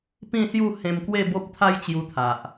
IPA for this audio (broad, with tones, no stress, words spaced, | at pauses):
pĩ˥˧sju˥˧ hẽ˧mkwe˥˧bo˦p̚ t̪ʰa˦jt͡ɕju˧t̪ʰa˨ʔ